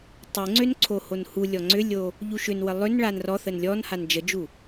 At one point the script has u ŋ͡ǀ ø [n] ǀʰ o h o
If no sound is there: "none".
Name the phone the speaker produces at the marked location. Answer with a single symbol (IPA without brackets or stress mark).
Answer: n